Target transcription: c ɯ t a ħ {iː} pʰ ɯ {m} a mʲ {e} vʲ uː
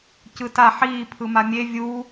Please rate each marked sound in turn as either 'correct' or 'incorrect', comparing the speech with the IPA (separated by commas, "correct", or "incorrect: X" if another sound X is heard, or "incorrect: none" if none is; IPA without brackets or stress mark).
correct, correct, correct